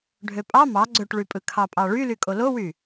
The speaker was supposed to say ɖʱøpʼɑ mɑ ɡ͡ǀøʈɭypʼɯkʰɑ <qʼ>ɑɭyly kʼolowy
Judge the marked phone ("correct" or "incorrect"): incorrect